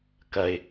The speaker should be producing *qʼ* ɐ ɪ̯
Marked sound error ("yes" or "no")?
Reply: yes